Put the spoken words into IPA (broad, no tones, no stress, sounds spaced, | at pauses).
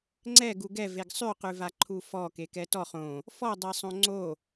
ŋ͡ǀ ɛ ɡ u ɡ ɛ v e ɡ sˤ ʉ q ʉ v a ǃʰ u f ɔ k e k ɛ t ɔ χ õ | f ɔ dˤ e sˤ õ ŋ͡ǀ o